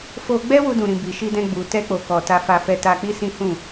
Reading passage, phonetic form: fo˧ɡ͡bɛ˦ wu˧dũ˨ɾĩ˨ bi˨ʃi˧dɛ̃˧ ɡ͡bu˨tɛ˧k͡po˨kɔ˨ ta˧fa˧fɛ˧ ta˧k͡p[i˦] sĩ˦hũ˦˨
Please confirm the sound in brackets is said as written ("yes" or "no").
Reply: yes